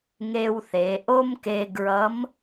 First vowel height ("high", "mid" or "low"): mid